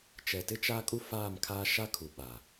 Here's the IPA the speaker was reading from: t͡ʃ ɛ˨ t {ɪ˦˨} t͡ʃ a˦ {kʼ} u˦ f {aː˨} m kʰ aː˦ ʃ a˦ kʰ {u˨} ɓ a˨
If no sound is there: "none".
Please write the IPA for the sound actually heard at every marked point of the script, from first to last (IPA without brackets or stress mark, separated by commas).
ɪ˦, kʼ, aː˦˨, u˨